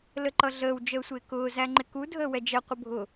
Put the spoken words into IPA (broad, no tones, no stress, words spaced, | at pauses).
ləǃʌɮəːw d͡ʒəːsʷɪːkʊː zæŋ͡ǃɪku dʱəːwɛd͡ʒɛ qʷəbʱʊ